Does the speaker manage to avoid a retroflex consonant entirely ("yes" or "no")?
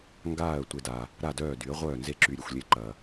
yes